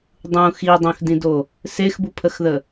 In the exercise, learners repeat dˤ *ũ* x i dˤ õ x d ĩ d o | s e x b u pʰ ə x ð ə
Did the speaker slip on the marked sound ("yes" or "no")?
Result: no